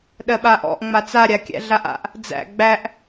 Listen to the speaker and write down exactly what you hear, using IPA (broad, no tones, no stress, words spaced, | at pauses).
ɗɜɓaʔɔ̰ʔ ŋ͡mat͡sa ɾʲakʲæ̰ɮaʔa̰ʔ | d͡zæ̰ ɡ͡bæʔ